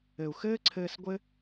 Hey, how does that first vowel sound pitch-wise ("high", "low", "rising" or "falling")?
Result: low